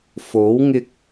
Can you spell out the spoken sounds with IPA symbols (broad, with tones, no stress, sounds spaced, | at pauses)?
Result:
f o˨˥ w ŋ ɪ˧ k̚